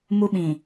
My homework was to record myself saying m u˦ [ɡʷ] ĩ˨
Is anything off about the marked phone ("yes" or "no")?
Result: yes